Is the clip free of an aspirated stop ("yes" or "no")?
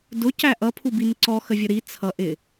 no